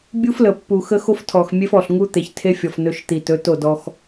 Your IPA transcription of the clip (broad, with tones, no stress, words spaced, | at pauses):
bʲu˦flə˨pːu˨xə˦ xo˦ftʰɔ˨xmʲe˦f ɔ˨ɬŋu˦t̪e˨ç tʰe˦fʲɔ˨f nɵ˦ʃ t̪i˨tɵ˨˦to˦˨ dɔ˦x